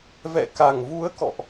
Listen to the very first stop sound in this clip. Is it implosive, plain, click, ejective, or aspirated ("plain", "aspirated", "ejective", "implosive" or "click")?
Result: plain